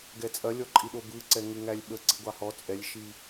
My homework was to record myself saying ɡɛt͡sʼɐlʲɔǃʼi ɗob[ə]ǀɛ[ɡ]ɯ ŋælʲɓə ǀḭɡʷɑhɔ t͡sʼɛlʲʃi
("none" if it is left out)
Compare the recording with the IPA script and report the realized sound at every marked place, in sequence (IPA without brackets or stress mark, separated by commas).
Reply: ɯ, ŋ